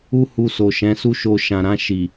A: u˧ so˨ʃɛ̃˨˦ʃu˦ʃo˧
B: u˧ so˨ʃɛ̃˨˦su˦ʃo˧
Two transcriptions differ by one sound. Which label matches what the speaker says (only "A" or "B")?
B